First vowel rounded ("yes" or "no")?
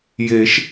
no